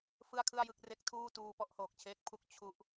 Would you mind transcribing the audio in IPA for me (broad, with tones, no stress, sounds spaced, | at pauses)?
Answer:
f ɯ˥˩ a̯ kʰ ɯ˥˩ a̯ j ɯ˦˥ k̚ r e˦˥ k̚ tʰ uː˥˩ t uː˧ p ɔ˥˩ ʔ h oː˨˩ k̚ t͡ɕʰ eː˦˥ k̚ pʰ u˥˩ k̚ t͡ɕʰ u˦˥ ʔ